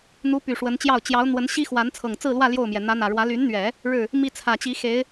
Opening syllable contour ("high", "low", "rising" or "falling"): rising